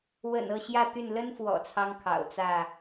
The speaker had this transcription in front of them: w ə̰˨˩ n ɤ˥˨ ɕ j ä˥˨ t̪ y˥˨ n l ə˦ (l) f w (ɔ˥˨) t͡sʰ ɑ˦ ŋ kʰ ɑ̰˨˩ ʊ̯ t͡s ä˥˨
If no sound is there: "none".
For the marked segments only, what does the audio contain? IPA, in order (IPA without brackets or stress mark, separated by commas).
n, ɔ̰˨˩